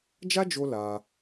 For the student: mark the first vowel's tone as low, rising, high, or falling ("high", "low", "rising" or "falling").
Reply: high